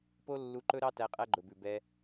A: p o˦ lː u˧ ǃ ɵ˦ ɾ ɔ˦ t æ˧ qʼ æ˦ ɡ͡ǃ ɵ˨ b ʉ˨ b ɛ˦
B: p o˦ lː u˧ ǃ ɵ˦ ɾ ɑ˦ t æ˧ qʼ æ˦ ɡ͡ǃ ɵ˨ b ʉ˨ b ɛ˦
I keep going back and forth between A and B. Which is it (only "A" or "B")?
B